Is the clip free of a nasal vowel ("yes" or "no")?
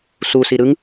yes